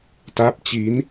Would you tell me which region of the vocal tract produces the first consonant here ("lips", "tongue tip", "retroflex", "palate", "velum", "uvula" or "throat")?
tongue tip